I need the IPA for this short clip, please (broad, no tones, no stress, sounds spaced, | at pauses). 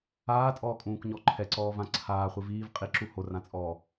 aː tʼ ɔː kʼ ũː k ɲ ɔ ǃʰ ɛ ǀ ɔː v ã ǀʰ aː χʷ i v iː v qʼ i ǁ u h o r ã t͡sʼ ɔː